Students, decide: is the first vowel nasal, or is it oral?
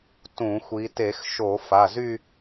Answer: nasal